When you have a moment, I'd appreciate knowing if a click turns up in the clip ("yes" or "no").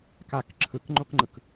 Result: yes